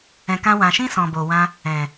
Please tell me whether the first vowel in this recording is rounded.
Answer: no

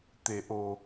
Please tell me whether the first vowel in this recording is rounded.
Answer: no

